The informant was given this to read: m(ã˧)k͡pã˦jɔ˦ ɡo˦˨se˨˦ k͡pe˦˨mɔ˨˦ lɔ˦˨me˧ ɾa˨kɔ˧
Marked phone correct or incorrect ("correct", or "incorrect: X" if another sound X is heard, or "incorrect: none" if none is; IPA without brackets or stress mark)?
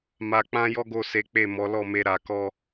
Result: incorrect: a˧